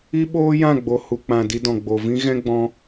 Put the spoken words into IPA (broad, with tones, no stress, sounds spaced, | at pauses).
i˦ ɓ oː˦ j ã˦˨ ɡ͡b o˨ h u˨ k͡p ã˨ d i˧ d ɔ̃˨ ɡ͡b o˨ v ĩ˦ ɣ ɛ̃˦ ɡ͡b ɔ̃˧